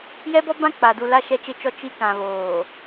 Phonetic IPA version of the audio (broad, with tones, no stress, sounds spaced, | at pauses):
j ɛ˦ b ɔ˦ b ã˦ k͡p a˨ d u˨ l a˨ ʃ ɛ˨ t͡ʃ ɪ˨ t͡ʃ ɔ˨ t͡ʃ i˦ k ã˨ β oː˨